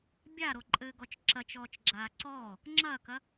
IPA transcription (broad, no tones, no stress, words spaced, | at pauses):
bʲaɾoǃʼɘːɡɔt͡ʃ ǁɐt͡ʃɔːt͡ʃɡ͡ǁaː ǀɔː | ŋ͡ǁɐːkɐ